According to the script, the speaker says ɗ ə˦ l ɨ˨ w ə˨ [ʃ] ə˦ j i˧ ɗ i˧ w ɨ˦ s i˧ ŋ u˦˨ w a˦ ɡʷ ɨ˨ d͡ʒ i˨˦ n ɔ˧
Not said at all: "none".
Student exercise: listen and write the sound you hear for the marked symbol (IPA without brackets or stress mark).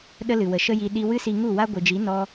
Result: ʃ